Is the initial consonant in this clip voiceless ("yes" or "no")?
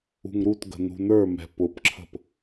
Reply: no